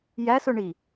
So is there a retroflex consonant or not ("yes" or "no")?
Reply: yes